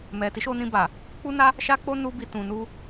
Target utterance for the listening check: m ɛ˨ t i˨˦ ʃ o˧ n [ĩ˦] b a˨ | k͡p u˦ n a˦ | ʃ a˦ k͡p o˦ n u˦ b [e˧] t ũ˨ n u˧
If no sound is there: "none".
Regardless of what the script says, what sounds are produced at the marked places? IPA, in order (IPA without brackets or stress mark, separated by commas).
ĩ˧, i˧